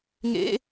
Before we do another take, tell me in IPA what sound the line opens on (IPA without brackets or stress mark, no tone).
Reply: ŋ